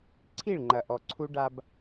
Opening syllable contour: falling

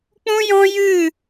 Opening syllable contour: high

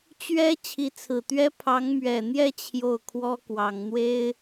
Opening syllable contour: high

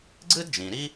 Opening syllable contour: high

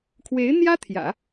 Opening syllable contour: rising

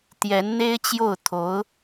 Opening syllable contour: rising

